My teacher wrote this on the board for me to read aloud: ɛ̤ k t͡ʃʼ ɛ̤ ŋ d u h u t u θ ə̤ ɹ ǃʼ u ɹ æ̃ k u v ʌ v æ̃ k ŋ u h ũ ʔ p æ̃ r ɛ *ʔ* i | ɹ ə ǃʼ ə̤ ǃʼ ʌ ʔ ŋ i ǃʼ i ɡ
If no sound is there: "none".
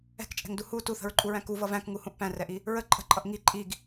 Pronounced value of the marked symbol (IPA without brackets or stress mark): ʔ